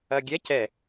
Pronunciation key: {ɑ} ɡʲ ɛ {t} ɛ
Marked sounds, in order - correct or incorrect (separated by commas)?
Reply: incorrect, incorrect